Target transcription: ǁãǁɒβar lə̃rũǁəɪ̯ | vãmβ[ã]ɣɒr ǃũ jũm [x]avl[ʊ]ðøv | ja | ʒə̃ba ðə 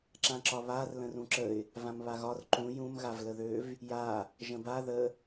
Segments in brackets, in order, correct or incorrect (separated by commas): incorrect, incorrect, incorrect